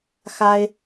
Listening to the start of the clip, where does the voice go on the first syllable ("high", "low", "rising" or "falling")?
high